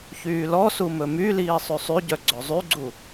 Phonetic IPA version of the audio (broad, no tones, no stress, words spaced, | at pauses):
çyːlɔsu mɵmyliː sˤʉsˤyɟœ ɡ͡ǀɵzˤyɡ͡ǀu